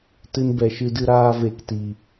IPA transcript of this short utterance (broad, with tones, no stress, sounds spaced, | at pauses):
t ɨ˧ n b ɛ˨ ʃ ɨ˧ d ɨ˧ ɾ aː˧ v e˨ k t i˨